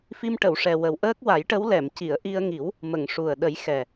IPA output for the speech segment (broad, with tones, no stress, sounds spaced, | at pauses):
f i˧ m ʈ ə˨˩˨ w ʂ ɛ˨˩ w ə˨˩ w ʔ əː˦˥ k̚ w a˨˩˦ j ʈ ə˧˥ w l ɛ˨˩˨ m c i˨˩˨ ə̯ ʔ i˧ ə̯ ŋ i˨˩˦ w | m ə˨˩˨ ŋ ʂ u˨˩ ə̯ ɗ ə˨˩˦ j x ɛ˨˩